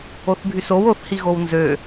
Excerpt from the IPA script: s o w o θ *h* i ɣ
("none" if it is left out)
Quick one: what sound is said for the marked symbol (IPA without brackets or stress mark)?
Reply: h